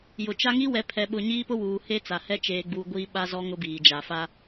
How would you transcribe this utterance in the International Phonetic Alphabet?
jʊ˨t͡ʃa˦ ŋi˦wɛ˨˦ pʰɛ˨ɓʊ˨ ɲiː˦pʊ˦wuː˨ he˦t͡sa˨hɛ˦ t͡ʃeː˨ɡ͡buː˨ ɡʷiː˦ɓa˦zɔ˦ ŋʊ˦biː˨d͡ʒa˨fa˦

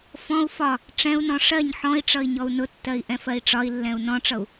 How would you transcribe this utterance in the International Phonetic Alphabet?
fɔ̃u̯ fɒ | ʈ͡ʂɛ̃u̯nɔ̃ ʂɜɲ ħɔ̃i̯ʈ͡ʂʌi̯ ɲɔu̯nʊtːɜi̯ ʔɛ̃fɜi̯ʈ͡ʂɒi̯lːɛ̃u̯ nɔ̃ʈ͡ʂʌu̯

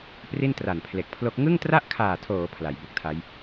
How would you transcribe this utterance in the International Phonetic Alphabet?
pri˥˩ntra˨˩npʰle˨˩k̚pʰlo˦˥k̚ ŋɯ˥˩ŋtra˥˩ʔkʰaː˨˩tʰoː˩˦ pʰla˩˦jbu˦˥k̚tʰa˦˥j

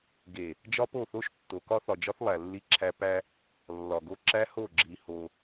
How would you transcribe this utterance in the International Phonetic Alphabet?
ɡe˨ | d͡ʒɒ˦po˦˨θo˦ʃtːo˨ kɒ˦θɒ˨d͡ʒɒ˦θlˠæ˨ lːi˦ǁʰæ˦ pæ˦ | lːɒ˨ɡo˦ ǁæ˦ho˦˨ɡ͡ǁi˨ ho˦

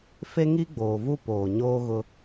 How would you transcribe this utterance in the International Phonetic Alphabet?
fe˦ŋi˦ɡ͡boː˨vu˦ poː˨ ɲoː˦ɣʊ˦

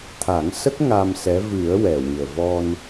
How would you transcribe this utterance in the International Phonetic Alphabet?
t̪ʰa˨˩˦ŋsə˦˥k̚ ŋa˧msɛ˧˥ vɨ˨˩˦ə̯ wɛ˨˩wɨ˨˩ə̯ vɔ˧n

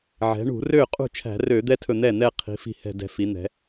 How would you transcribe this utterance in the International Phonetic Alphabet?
ʕɛ̤˩˧ɳṳ˧˩˧ rø˥˩qʼṳ˥˩ t͡ʃʰæ̤˧˩˧rø˧˩˧d̪ɛ˦˥tʰɵ˧˩ n̪ɛ˥˩n̪ɛ˥˧ qʰi̤˩˧fi̤˧˩hɛ̤˧˩ dɛ̤˧˩fi˩˧n̪ɛ̤˩˧

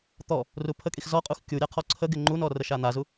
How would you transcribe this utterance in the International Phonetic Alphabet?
t̪ɔ | rupʰəkʼix zɔqʼux kʲuɾʲa qʰɔǀʰəɡɪ ŋ͡ǃunɔ rəʃan̪azu

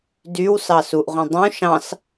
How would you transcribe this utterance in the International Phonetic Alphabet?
dywsɑ suʔʁʷẽ dˤũ ʃɑ̃s

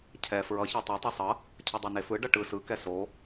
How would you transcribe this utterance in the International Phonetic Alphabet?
cʰɛ fɹʌ çatˤo tˤɛsˤʌ | cʰɯdˤenefɯ ɖʌʈɯ sɯ kɛso

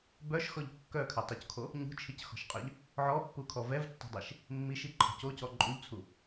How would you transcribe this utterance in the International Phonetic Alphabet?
bœʃxɔʎ kːœkʰœtˤuckʰo | ɲṳt͡ʃʰicxɔ̤ʃqʼœʎ | ʕɔpːukʰɔ vɛvtːɔ̤dˤeʃ | mːiʃiǃʰɔ̤c ocɔ ǃʼuʎt͡sʰu

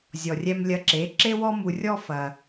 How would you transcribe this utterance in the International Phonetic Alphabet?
zʲɔ˨rʲɛ˧mlʲɐ˧ǁe˨˦ ǁe˦wɔ˦mu˧rʲɔ˦ fɐ˧

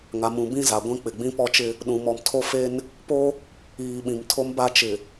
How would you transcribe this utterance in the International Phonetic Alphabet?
ŋa˨mũ˨ bĩ˦za˨ɡʷĩ˦ k͡pɪ˨ɡ͡bĩ˦pɔ˦t͡ʃɪ˦ | ɗũ˨mɔ˨mtʰo˦fe˦n | po˦ | iː˨ɓĩ˨m tʰo˦mba˦ t͡ʃɪ˨

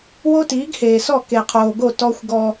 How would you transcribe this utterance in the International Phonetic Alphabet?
wo˦tiː˨˦ɡheː˨sɔ˦˨ ke˨qʰoː˨ɡo˦˨ tɔ˦xʷɡɔ˦

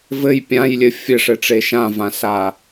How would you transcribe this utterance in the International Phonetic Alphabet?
vɘj pʲãjlʲɘ fʲɘʂɘʈ͡ʂe ʃãvãsa

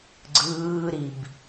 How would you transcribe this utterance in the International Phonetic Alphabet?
ɡ͡ǀɯːɾib

